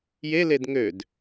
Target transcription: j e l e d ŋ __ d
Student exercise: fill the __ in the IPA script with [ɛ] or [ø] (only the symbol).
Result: ø